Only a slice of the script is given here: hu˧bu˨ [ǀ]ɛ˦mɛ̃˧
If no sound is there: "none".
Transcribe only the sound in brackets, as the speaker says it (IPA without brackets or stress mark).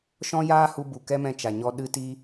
k